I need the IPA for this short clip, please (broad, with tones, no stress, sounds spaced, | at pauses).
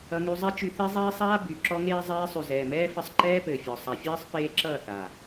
ʌ˧ ŋ y˧ zˤ ɛ˦ t͡ʃ y˧ θ e˦ zˤ eː˦ sˤ aː˦ b y˨ ǁ ɔ˦ ŋ eː˦ zˤ eː˧ sˤ y˨ z ɛː˨ m ɛː˦ f ɘ˧ sˤ ǃ ɛː˦ p ɘː˨ fʲ ɔ˨ sˤ a˨ fʲ ɜː˦ sˤ p eː˦ ǁ ʌː˦˨ θ aː˨